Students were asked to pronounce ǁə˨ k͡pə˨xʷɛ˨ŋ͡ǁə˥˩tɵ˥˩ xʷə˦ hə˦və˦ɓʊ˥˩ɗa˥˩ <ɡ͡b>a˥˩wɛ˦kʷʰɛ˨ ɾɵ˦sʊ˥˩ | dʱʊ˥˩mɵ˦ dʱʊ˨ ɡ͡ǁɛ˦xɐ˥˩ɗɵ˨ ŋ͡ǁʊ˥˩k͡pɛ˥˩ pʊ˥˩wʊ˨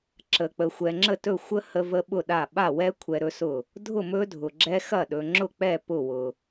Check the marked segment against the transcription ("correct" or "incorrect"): incorrect